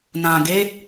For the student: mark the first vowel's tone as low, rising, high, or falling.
low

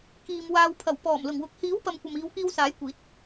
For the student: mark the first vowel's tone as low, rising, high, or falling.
low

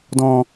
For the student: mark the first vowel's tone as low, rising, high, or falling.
low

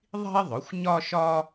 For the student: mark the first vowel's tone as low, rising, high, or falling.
high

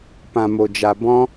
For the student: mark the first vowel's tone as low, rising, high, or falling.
low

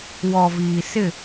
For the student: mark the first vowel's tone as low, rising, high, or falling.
low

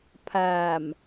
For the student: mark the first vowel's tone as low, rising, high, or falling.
low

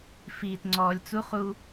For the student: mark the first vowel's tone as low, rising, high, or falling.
low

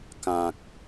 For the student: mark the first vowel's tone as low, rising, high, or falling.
low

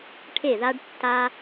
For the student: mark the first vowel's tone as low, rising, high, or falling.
falling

